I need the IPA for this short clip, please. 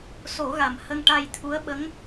s o˨˩˦ ɣ a˨˩ m h ə˧ ŋ ʈ a˧ j t̪ʰ u˧˥ ə̯ ɓ ə˧˥ ŋ

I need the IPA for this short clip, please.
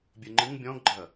bʲ ɘ ŋ͡ǃ ɨ ŋ bʲ ɔ̃ ɡ ɡ͡ǃ ɐ

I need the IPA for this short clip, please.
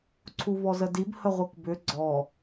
ǀʰ u v ɔ z ə d i b h ə ʁʷ ɯ k b ʏ ɡ͡ǀ ɔ

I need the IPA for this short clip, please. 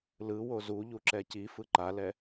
l ɯ w o z u ʎ u ǁ ɛ c i f ɯ ǃ a l ɛ

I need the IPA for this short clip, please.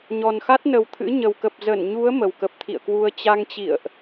ɲ ɔ˨˩ n x a˦˥ t̚ n ə˨˩ w t̪ʰ ɨ̰˧˥ ɲ ə˨˩ w k ə˨˩ p̚ z ə˧˩ n ɲ u˨˦ ə̯ m ə˨˩ w k ə˨˩ p̚ t̪ʰ ḭ˧˨ ə̯ k w u˧ ə̯ t͡ɕ a˧ ŋ t͡ɕ ḭ˧˨ ə̯ ʔ

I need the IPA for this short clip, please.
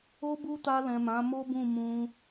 o˦ b u˦ t a˧ l ɛ̃˨ m ã˨˦ m o˦ b ũ˦˨ m ũ˧

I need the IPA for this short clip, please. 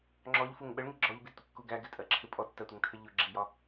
ŋ͡ǁ ɔ ʎ f u ŋ ɓ ə ɭ ŋ i ɡ͡ǁ ɔ ʎ b i d tʷ ə kː u ɡ æ ɡ ɪ tʼ ɜ ǁʰ ɪ pʼ ɔ tː ɜ tʷ ɪ ŋ tʰ ə ʎ ʊ ɡ͡ǁ i j ɒ

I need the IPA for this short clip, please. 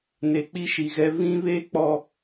n e˨ k͡p i˦ ʃ i˨ ɣ ɛ˦ v ĩ˦ β e˦ k͡p ɔ˦

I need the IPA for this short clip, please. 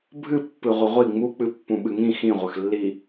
bʱ ɨ pː ɨ ʁʷ ə ʁʷ i ŋ͡m u k͡p ɨ pː ũ ɓ ɨ ŋ ĩ x ĩ ʁʷ ə x lː i

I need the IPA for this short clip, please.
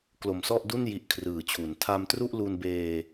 k l o˨˩ m s ɔ˥˩ ʔ d u˥˩ n j i˦˥ ʔ kʰ r ɯː˨˩ t͡ɕʰ u˩˦ n tʰ a˧ m t r u˥˩ ʔ l u˧ n b eː˧

